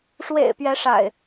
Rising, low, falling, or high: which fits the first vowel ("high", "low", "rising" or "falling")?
low